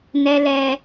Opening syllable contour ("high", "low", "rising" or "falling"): high